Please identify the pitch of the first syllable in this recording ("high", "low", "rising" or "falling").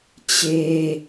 high